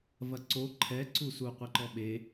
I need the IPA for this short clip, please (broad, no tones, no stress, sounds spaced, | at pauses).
v ɐ ǀ o ǃʰ ɛ ǀ u s u qʷ ɛ ǃ ɔ ɓ e